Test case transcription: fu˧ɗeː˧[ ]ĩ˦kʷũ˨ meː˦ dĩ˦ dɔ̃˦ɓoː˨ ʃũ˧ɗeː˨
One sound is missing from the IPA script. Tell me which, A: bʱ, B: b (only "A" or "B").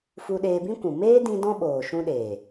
B